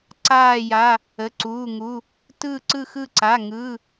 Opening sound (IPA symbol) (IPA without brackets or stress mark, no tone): ǀ